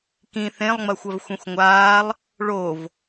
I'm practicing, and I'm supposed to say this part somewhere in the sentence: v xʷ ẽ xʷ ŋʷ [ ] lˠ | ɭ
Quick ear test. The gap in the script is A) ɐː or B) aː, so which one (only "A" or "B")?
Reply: B